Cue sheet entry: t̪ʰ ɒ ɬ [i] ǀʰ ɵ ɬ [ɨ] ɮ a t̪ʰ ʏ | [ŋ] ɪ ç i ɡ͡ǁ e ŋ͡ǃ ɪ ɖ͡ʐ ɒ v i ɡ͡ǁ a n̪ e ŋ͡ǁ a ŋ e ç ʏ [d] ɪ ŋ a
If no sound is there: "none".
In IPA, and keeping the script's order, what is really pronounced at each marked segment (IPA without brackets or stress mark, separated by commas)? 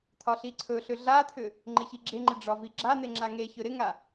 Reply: i, ʏ, ŋ͡ǃ, ɾ